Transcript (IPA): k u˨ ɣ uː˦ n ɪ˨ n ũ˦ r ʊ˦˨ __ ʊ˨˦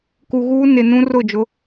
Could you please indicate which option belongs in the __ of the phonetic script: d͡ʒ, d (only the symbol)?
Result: d͡ʒ